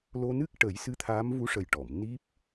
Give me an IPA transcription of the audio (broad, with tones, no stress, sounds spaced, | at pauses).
l o˧ n ɨ˦˥ k̚ ʈ ə˨˩˦ j s ɨ˧˥ t̪ʰ aː˧˥ m v u˧˥ ʂ ə˨˩ j ʈ ɔ˨˩˨ m n i˦˥ p̚